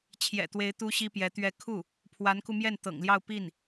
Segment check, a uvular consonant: absent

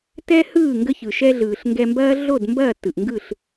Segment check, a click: absent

